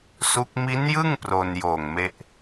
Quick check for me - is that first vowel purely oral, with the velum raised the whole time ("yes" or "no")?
yes